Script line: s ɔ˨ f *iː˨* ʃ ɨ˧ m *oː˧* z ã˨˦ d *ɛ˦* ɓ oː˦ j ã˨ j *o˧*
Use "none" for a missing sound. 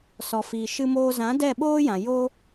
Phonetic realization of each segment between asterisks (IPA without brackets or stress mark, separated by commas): iː˨, oː˧, ɛ˦˨, o˦